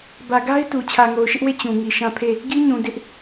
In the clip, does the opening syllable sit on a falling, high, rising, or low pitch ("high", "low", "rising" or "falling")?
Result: low